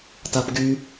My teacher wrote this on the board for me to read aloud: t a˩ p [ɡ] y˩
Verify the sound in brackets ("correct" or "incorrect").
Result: correct